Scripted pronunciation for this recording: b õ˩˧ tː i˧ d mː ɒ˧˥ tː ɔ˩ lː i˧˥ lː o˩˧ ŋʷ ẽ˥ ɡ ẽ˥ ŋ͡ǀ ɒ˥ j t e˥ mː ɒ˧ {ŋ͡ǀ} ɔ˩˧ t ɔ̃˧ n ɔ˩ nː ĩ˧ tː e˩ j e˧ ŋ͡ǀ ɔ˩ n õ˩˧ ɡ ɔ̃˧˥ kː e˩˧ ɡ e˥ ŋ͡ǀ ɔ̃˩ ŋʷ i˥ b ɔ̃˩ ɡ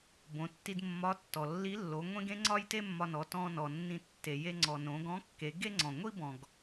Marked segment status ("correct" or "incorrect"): incorrect